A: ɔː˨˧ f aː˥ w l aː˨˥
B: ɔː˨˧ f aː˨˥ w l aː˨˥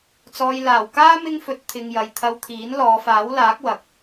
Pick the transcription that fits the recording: B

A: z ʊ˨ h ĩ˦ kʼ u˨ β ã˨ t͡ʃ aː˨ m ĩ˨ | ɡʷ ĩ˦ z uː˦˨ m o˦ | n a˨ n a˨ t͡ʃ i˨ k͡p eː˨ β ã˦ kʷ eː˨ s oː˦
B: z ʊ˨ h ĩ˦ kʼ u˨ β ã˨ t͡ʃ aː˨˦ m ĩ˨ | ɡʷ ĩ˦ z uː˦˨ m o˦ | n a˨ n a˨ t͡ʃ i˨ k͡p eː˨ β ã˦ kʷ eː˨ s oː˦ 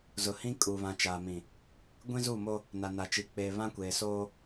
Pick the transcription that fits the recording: A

